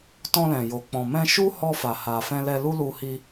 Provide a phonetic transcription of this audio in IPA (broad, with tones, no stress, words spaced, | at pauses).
tɔ̃˧lɛ̃˨jo˨k͡pɔ̃˨ mɛ̃˧ʃu˦hɔ˧ fa˨ha˨ fɛ̃˧lɛ˧lu˦lu˧ hi˧